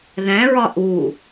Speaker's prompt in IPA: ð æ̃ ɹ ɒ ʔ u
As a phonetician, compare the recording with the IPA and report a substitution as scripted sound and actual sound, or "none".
none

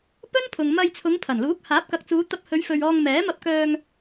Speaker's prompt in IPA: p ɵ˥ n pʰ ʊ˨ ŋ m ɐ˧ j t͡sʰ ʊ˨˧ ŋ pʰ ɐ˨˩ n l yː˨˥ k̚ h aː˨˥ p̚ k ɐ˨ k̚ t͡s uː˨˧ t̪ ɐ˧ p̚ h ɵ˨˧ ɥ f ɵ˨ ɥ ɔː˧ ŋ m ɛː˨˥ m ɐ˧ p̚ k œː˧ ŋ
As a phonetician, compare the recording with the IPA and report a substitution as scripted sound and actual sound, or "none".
yː˨˥ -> uː˨˥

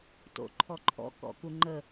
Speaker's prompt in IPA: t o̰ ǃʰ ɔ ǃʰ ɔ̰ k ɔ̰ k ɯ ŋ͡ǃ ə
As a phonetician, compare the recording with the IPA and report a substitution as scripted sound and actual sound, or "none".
ɯ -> u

